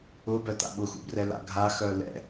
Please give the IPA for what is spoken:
ʊ b œ t a̰ ɓ ʊ x ṵ b r ɛ l a̰ ɡʱ a x œ l ɛ̰

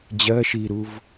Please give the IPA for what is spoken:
d͡ʑ ɜ ʃ i ɾ u v

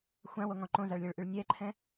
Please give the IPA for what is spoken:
xʷ ã w o ŋ ɔ̃ ǃ õ z a ɭ lʲ õ ɭ ʔ y ɭ nʲ ɛ ǃʰ ɛ̃

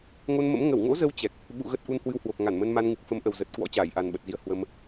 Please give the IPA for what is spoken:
ŋ o˧ n m ə̰˧˥ m ŋ ə˧˩ w ŋ o̰˧˥ z ə˨˦ w t͡ɕ ɛ˨˩ k̚ | ɓ ṵ˧˨ ɣ ə˦˥ t̚ ʔ u˧ n h w ɨ˧ w h w o˨˩ k̚ ŋ a˧˩ n m ə˧ n m a˧ n ŋ ɨ˨˩ k̚ f ə˨˦ m ʔ ə˨˩ w z ə˨˩ t̚ k w ɔ̰˧˥ t͡ɕ aː˧˩ j ʔ a˨˩ n ɓ ə˨˩ t̚ z i˨˦ ə̯ h w ə˧ m

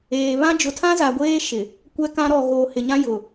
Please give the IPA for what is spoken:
eː˨ β ã˦ d͡ʒ ʊ˨ tʰ ã˦ z a˨ ɡʷ eː˦ ʃ ɪ˨ | kʷ ɛ˦ k ã˦ ɾ ɔ˨ ɣ oː˨ h ɪ˨ ɲ ã˦ j ʊ˨

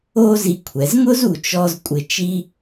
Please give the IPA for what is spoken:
o˥ z i˧ kʷʰ ɛ˩˧ z ŋ ʊ˥ z u˧ t͡ʃ ɔ˥ z kʷʼ ɪ˧˩ t͡ʃ i˥

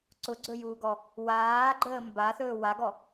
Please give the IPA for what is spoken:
ǀ ʊ ɡ͡ǀ ɵ j uː ɡ ɔ | w aː ɡ͡ǃ əː m b a θ ɵː w a ɡ ɔ

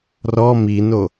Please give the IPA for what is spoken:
r ɔ m i n o

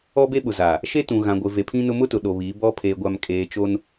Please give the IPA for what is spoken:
ɔ˦ b e˦ ɓ ʊ˨ z aː˨ | ʃ e˦ t ũ˨ ɣ ã˨ ɡʷ ɪ˨ v e˨ pʰ ĩ˦ n ʊ˦ m ʊ˦ t ʊ˨ ɗ o˨ β i˨˦ b ɔ˦ pʰ eː˨ ɡʷ a˨ m kʼ eː˨ t͡ʃ o˦ n

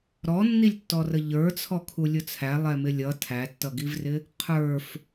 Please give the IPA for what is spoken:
ɾ ɔ nː i lʲ tː ɔ r ə ʎ ə˞ t͡sʰ ɔ kʰ u lʲ ʊ t͡sʰ æ lˠ ɛ m ɪ lʲ ʌ tʰ æ tː ʌ ɡ i v r ɪ | qʰ ə˞ f

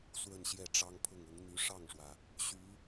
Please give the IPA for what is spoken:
s w ə˥˧ n ɕ j ɛ˥˩ ʈ͡ʂ ɑ˥ ŋ pʰ ʊ˥˩ ŋ ʊ˧˥ ŋ n̪ y˧˥ ʂ ɑ˥˩ ŋ ʂ w ä˩ | ɕ y˧˥

